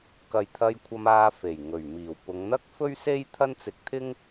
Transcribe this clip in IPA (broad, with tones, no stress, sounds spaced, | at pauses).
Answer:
k ɐ˨ j t̪ʰ ɐ˧ j kʷʰ ɐ˧ m aː˧ f e˨˩ j ŋ ɵ˨˩ ɥ m iː˨˩ w p ʊ˨˧ ŋ n̪ ɐ˥ k̚ f ɵ˥ ɥ s e˥ j t̪ʰ ɐ˥ n t͡s ɪ˧ k̚ t̪ʰ ɪ˥ ŋ